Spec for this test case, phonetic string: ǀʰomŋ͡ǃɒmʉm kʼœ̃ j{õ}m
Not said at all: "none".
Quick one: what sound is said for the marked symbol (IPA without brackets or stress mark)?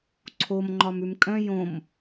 õ